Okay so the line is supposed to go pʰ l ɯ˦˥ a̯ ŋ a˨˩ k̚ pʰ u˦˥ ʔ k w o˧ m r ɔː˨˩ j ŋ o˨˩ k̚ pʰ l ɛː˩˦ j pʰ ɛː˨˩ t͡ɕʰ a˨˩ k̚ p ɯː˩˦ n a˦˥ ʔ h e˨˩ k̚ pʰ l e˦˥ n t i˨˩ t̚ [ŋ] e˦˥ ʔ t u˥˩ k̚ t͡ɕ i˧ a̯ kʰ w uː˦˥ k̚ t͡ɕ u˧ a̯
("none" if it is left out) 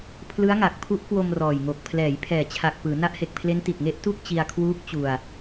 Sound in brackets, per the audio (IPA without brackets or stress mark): ŋ